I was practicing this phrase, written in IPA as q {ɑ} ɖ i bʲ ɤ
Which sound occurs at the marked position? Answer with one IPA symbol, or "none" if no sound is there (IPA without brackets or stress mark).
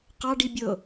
ɑ